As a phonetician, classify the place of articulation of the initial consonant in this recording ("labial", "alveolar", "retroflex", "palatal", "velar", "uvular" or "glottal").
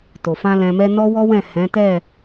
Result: alveolar